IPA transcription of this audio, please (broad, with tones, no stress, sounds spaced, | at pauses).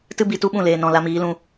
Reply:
t ɨ˦ b i˧ t u˦ ɓ ũ˦˨ l eː˨ n ɔ̃˨ l a˧ m iː˨˦ l ũ˧